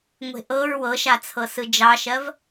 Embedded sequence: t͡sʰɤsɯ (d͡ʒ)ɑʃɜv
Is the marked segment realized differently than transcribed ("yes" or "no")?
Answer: no